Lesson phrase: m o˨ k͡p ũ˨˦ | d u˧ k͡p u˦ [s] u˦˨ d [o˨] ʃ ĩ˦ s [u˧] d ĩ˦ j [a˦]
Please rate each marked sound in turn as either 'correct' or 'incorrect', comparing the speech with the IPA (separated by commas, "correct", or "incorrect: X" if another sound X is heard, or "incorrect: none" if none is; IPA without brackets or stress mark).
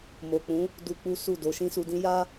correct, incorrect: o˨˦, correct, correct